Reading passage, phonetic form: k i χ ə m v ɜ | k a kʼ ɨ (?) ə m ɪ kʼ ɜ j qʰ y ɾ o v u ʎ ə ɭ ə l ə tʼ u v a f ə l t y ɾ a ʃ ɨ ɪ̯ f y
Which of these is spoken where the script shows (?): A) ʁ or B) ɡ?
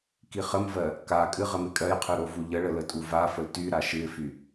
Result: A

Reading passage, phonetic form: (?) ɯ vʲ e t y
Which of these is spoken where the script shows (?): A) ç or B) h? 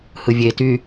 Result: B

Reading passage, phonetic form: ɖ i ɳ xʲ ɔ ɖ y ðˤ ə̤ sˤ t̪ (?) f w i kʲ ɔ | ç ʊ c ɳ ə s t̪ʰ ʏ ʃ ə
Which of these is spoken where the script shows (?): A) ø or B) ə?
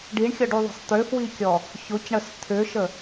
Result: A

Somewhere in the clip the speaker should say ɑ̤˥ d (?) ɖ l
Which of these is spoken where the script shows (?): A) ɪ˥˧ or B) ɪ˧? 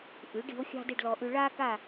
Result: A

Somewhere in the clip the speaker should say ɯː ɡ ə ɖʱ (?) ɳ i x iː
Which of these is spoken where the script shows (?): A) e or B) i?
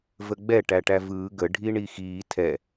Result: B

